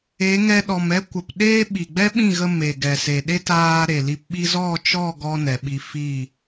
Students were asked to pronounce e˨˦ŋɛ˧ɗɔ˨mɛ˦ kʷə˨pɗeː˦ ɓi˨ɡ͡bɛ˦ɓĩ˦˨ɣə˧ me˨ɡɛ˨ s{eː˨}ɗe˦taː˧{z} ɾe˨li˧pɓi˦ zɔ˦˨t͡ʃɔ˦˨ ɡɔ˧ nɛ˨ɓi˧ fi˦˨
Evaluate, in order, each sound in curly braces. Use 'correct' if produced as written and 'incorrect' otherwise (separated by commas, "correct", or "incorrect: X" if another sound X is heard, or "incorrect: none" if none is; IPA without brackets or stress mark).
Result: incorrect: e˨, incorrect: none